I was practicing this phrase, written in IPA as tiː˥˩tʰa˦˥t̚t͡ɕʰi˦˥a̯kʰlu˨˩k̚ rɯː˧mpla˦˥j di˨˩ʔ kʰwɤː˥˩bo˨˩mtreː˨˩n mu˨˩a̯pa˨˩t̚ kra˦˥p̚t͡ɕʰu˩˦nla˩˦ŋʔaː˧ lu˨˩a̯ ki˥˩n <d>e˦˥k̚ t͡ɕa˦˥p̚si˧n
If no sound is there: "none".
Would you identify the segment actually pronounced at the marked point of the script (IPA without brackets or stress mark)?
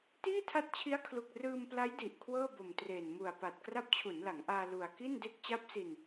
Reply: d